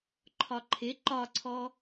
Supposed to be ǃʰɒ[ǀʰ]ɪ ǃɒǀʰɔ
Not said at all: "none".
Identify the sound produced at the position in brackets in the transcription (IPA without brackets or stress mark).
ǃʰ